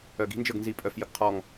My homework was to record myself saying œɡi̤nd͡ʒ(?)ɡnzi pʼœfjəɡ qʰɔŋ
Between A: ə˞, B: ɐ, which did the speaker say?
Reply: A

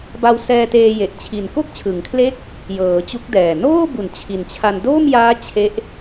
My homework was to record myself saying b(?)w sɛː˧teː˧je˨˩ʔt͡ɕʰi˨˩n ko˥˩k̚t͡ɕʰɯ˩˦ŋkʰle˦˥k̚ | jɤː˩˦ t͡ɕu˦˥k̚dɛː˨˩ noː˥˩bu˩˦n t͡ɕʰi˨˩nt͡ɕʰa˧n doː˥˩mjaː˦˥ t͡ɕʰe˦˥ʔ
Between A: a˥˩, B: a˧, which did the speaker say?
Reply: B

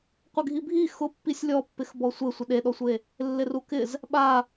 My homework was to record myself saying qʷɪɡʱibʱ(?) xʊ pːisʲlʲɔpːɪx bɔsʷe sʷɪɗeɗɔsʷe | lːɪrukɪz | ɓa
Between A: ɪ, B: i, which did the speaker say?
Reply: B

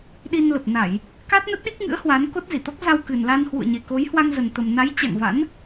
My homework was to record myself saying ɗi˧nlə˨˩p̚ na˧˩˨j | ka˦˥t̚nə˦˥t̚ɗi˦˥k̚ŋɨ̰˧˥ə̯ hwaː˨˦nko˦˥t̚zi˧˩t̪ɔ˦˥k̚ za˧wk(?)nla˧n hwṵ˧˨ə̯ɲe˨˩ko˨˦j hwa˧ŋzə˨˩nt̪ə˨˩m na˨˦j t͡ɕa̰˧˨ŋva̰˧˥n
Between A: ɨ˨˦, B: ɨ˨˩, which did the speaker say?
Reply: B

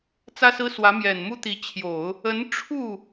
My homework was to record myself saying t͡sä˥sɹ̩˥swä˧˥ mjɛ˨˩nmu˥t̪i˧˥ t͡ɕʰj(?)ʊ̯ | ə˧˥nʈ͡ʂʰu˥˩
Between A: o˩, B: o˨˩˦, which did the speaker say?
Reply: B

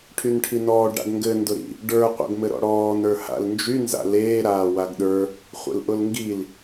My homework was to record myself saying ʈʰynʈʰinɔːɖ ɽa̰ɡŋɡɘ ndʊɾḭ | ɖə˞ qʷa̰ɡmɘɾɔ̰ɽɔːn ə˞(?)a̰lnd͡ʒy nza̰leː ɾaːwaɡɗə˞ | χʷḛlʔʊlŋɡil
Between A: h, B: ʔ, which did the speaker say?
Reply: A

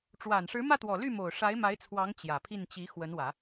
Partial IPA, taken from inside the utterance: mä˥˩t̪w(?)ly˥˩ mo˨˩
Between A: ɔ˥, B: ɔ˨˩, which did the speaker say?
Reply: B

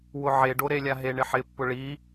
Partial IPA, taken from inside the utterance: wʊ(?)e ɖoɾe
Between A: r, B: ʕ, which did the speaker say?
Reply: B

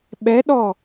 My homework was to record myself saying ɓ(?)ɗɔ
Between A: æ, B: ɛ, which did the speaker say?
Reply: B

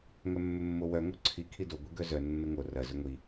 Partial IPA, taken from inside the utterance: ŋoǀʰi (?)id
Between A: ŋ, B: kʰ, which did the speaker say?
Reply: B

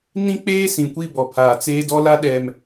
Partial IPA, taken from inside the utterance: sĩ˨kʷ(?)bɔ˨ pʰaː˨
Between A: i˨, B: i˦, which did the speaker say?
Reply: B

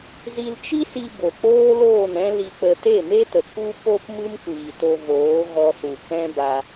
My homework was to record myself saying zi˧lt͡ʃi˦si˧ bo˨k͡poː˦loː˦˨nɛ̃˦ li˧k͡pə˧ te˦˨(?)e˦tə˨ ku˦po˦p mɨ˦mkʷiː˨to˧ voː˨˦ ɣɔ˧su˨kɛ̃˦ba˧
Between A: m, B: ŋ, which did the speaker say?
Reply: A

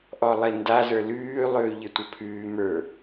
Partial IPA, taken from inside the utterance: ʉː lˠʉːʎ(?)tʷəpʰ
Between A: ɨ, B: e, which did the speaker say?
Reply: B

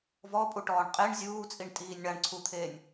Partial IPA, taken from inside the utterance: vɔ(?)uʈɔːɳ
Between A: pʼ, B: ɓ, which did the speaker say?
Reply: A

